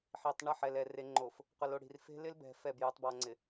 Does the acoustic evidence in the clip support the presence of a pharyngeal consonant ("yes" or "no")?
yes